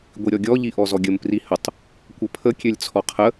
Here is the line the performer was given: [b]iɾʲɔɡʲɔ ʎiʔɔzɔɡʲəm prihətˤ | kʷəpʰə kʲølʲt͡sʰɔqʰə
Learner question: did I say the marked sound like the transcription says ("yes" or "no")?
no